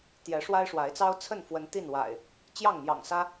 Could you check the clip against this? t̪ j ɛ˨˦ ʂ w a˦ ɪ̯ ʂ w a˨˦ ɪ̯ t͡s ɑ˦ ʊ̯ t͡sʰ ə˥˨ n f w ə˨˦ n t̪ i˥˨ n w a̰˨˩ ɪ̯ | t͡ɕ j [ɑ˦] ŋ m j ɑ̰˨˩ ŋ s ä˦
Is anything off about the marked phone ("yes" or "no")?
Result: yes